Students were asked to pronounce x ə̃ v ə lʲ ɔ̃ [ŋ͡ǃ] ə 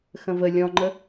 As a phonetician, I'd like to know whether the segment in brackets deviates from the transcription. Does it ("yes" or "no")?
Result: no